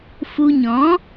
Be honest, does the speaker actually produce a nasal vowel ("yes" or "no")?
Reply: yes